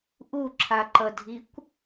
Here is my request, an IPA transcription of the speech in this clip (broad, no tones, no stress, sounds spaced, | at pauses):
ʔ u ǁʰ a ǃ ʌ dʱ i kʷ